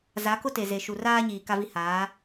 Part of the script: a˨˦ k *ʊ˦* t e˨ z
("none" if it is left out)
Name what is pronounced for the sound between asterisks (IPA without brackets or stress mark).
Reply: ʊ˦